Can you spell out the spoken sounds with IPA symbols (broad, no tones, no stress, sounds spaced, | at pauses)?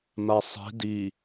m a sˤ i̤ d i